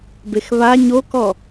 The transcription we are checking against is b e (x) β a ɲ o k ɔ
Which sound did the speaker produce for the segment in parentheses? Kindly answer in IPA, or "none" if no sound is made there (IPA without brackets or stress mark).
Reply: x